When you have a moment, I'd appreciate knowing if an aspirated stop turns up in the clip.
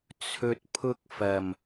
yes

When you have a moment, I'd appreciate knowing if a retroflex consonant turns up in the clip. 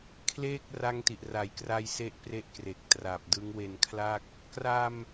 no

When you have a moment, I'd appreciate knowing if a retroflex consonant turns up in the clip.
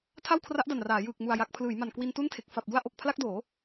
no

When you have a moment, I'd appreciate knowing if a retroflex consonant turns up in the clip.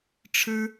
yes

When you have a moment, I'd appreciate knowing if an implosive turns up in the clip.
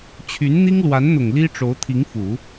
no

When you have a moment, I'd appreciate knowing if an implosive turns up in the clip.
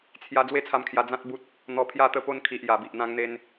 no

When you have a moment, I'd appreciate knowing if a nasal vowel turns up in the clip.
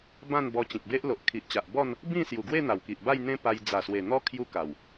yes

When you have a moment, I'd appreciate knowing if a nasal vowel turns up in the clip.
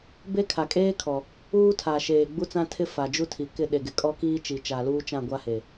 yes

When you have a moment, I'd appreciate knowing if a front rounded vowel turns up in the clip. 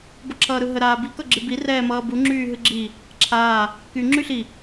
yes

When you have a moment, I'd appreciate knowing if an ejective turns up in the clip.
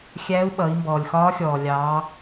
no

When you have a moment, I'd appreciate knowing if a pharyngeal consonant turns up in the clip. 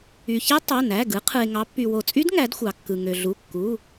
no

